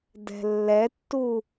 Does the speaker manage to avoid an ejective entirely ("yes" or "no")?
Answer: yes